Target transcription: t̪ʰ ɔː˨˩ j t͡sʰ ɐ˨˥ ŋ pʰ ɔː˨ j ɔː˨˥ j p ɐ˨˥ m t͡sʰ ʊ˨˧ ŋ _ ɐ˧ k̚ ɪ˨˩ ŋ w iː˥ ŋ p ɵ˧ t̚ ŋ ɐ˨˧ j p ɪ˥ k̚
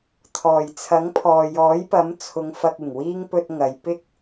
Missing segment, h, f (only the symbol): f